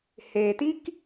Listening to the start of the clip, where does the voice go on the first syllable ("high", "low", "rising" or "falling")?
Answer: low